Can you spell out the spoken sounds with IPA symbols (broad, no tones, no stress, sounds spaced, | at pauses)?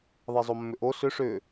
ðˤ e zˤ o mː ʏ ʔ o s ʏ ʂ ʏ